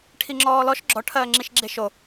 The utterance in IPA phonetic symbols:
ʈʰiŋ͡ǁɔːlɔʃ ɡ͡ǁɔ ʈʰɜːŋ͡ǁiʃɡ͡ǁeʃo

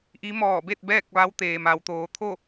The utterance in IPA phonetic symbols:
ʔi˧˥ mɔː˧˩be˥˨t̚ bɛː˥˨k̚ʋa˧˥wt̪eː˩ ma˩w t̪oː˩˧t̪ʰo˥˨

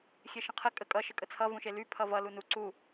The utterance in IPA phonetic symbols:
xʲeʃə̃qʰə kʼəkʼʌ ʃəkʼət͡sʰʌ vũʃely pʰʌvʌ lunu ǀu

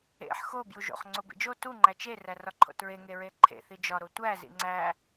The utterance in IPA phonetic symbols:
ḛħ xo bjuʒo̰χ ŋ͡ǀobḭd͡ʒo tu ŋ͡ǃæt͡ʃe rærɒǃʰo̰tɹe ŋeɹeǃʰḛ θid͡ʒɒ ɾotʷæ zḭŋ͡ǀæ

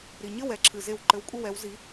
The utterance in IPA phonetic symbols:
ɾi˩ɲɘ˥˩w ɛ˨˥ǁʰɨ˩ze˧˩w ǃɘ˨˥wkʷʼɘ˥wɛ˨˥w zi˨˥

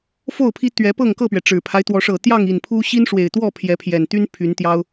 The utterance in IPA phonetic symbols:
fo˥˨ʊ̯ pʰi˦ t̪ɥɛ˨˦ pɤ˥˨ŋkɤ˥˨pɥɛ˩ ʈ͡ʂɻ̩˨˩pʰa˦ɪ̯ t̪wɔ˨˦ʂɤ˨˩t̪jɑ˥˨ŋ i˨˩npʰu˦ ɕi˦nʂwe˨˩ɪ̯t̪wɔ˥˨ pʰjɛ˨˦pʰjɛ˨˩nt̪y˦n pʰy˨˦nt̪jɑ˦ʊ̯

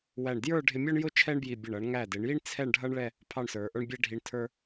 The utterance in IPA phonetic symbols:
wæ˧˩ɳ djə˞˥˧ɖʱɪ˧ mʲɔ˥ɳjʊ˥ t͡ʃʰɛ˥ɳbji˧˩ bʲə˧˩ɳ ʌ˩˧ɳŋæ˧˩dɪ˩˧ɳji˥ɳ t͡sʰɛ˥˧ɳɖʱʌ˥ɳɭɛ˥˧ | pʰɑ˥˧ɳsə˞˩˧ʔə˞˥ɳ bʲɛ˥ɖʱi˧ɳ tʰə˞˥

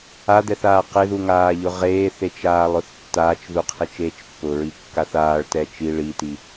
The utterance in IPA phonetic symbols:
ad̪ɛθaː qɪðuŋaːʎʊ ʁeːθet͡ʃaːlˠʊθ tːaːt͡ʃðuqʰet͡ʃeːt͡ʃ pːʊɹikːaθ aːɭtɛ t͡ʃi ɭiti

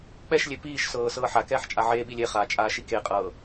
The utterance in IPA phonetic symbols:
k͡pɛʃlʲe piːʃsɤː sɤːħakɛːħ t͡ʃʼaʕeːɓi lʲeχaː t͡ʃʼaːʃikeqʼɤː

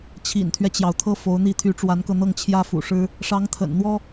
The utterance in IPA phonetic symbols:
t͡ɕʰḭ˨˩nt̪ʰɥɛ˦t͡ɕjɑ˩ʊ̯ t̪ʰɤ˥˩ fo˧˥ʊ̯n̪i˥˩ t̪ʰy˧˥ʈ͡ʂwa˧˥nkɤ˧n̪ɤ˥˩ŋ t͡ɕʰjä˥fṵ˨˩ʂɻ̩˥ | ʂɑ˧˥ŋt̪ʰə̰˨˩nn̪wɔ˥

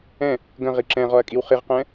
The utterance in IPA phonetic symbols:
ɛ̃ | ɡə̃ ʁiǁɛ̃ʁɔɐ̯ kʼiwχiʁqɛ̃

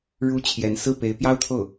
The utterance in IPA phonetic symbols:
ɻu˧˥ t͡ɕʰjɛ˧˥n sɹ̩˥˩ pe˧˥ɪ̯pjɑ˥ʊ̯t̪ʰo˥˩ʊ̯

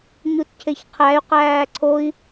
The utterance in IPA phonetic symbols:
ɲutcʰeçqʰæy̯ qæːǀʰoi̯

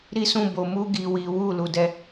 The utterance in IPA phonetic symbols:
ɾi˦sũ˦˨ bo˧mu˦ ɡi˦wi˦ wu˦˨ lu˧dɛ˦

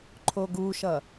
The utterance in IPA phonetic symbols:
ǃʰoɡuʃʌ

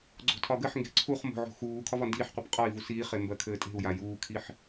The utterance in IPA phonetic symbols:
ɡ͡ǀo̤tʰɒɡɘħŋɡe̤ ǀʰuχ mo̤ʕo̤ xuː kʰɒvɒndiːħqʷip qʼɒi̯vu siːχe mbɜkʰɘːtʼe̤u̯ja juːkʰiħ

